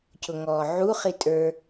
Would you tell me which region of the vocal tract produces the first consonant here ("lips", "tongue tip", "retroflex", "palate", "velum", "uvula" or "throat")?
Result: palate